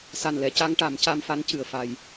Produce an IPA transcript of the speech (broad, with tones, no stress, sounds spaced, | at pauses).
s a˨˩ n l ɛ˨˩˨ c a˧ ŋ ʈ a˨˩˦ m c a˧ m f a˧˥ n c ɨ˨˩ ə̯ f a˨˩ j